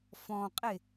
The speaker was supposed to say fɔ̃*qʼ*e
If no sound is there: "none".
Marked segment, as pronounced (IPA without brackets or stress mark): qʼ